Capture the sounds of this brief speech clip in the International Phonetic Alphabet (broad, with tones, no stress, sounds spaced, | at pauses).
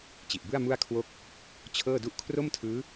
t͡ɕ i˨˩ ʔ b ɯ˥˩ a̯ m u˥˩ a̯ kʰ w o˦˥ k̚ | t͡ɕʰ ɤː˥˩ d u˥˩ ʔ kʰ r o˥˩ m tʰ ɯː˦˥